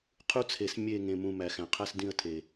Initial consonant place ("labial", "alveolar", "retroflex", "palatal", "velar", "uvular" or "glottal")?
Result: uvular